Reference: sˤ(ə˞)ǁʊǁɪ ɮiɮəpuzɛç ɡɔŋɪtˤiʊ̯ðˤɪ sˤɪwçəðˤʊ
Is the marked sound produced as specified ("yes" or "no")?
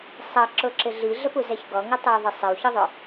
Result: no